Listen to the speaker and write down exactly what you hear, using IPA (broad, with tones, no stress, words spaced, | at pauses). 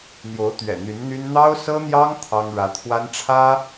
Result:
n̪jo˧˥ʊ̯t̪ɥɛ̰˨˩n̪y˧˥nn̪y˥n n̪ɑ˥ʊ̯sɤ˥n̪jɑ˥ŋ t̪ʰɑ˥ŋ ɻä˧˥ t̪ʰwa˥n ʈ͡ʂʰä˥